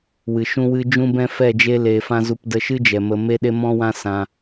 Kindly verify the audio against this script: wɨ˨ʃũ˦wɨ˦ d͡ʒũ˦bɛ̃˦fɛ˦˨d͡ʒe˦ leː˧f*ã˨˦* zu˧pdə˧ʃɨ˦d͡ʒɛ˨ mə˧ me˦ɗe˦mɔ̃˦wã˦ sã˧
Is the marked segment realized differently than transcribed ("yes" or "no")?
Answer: yes